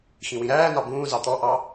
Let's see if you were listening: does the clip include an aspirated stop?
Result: no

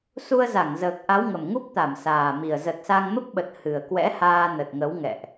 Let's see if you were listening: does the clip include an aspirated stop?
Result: no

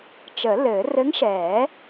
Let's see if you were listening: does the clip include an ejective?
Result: no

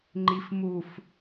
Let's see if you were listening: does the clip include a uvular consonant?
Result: no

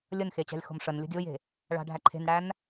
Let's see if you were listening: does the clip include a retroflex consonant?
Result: yes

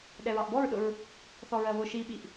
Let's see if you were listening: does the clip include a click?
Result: no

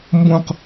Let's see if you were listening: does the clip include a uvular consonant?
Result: yes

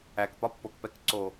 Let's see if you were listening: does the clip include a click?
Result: yes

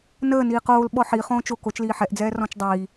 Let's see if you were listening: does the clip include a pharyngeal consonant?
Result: yes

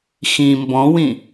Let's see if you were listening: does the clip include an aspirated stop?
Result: no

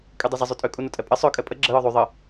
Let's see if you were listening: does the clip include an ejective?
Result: yes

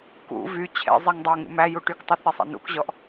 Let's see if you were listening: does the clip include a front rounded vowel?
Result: yes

